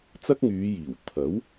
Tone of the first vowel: high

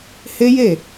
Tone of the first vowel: high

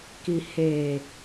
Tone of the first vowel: low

